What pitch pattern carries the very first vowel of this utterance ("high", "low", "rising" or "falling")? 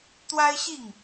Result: high